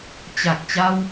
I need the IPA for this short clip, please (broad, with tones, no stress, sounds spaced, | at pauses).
t͡ɕ a˨˩ k̚ t͡ɕ a˧ w